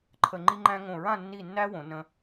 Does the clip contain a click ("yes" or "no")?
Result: yes